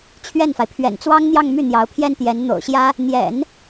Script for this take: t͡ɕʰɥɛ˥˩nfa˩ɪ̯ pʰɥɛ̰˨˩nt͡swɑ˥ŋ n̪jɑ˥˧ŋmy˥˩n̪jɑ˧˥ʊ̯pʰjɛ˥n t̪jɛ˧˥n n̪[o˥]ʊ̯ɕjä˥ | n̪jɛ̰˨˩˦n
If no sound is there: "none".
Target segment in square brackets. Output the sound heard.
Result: o̰˨˩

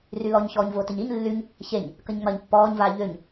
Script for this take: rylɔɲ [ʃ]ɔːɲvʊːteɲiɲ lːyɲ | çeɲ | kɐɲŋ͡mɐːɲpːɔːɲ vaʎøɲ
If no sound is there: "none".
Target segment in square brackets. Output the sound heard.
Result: ç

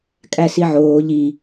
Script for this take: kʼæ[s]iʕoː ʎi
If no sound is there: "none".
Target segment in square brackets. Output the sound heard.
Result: s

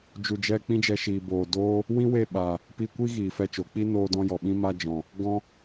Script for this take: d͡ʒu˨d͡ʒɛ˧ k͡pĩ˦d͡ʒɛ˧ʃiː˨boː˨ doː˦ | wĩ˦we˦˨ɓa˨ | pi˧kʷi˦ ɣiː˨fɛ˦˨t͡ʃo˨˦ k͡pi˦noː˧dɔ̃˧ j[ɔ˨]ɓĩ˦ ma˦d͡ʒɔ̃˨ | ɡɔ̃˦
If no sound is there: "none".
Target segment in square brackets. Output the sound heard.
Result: ɔ˨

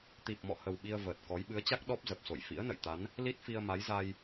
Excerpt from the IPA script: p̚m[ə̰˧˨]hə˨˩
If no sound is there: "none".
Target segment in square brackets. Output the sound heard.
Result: ɔ̰˧˨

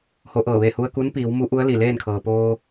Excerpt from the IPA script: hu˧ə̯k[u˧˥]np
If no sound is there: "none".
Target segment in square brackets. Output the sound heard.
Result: u˧˥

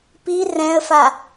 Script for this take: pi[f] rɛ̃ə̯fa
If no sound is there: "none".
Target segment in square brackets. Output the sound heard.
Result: none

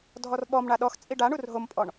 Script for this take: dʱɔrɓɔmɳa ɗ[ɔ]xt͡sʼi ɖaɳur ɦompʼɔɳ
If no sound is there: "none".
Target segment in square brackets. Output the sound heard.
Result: ɔ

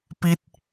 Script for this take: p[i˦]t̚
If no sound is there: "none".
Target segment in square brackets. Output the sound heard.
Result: i˦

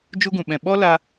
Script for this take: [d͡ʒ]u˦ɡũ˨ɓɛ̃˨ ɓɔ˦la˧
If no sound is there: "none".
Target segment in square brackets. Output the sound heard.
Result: d͡ʒ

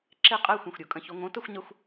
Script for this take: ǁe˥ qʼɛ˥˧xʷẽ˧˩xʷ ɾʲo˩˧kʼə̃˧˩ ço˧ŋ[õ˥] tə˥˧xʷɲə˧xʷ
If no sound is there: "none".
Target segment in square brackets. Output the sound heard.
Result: õ˥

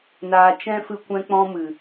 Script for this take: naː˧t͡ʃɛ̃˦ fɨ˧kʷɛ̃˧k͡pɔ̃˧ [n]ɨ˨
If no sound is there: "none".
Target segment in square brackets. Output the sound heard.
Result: m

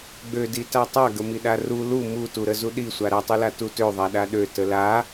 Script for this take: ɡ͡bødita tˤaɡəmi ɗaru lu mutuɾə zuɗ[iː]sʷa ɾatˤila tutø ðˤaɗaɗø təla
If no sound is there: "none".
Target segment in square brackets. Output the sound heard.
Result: i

